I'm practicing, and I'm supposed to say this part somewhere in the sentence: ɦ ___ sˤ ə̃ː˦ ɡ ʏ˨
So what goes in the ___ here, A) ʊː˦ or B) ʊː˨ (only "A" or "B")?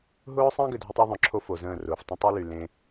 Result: A